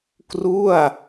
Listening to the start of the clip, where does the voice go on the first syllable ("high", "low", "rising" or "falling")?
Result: falling